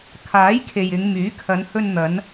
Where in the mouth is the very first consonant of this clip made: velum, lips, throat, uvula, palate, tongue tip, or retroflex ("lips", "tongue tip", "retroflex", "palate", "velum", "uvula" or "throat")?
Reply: velum